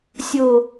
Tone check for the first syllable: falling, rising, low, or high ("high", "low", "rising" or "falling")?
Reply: low